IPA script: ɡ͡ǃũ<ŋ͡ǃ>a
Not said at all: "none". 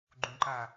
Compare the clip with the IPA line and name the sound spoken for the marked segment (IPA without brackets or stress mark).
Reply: ǃ